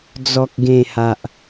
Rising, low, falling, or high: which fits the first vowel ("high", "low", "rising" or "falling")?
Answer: low